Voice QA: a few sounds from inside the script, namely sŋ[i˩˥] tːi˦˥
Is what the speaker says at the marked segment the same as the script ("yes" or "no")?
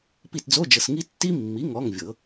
no